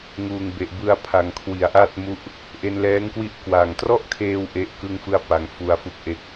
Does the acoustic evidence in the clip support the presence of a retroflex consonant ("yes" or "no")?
no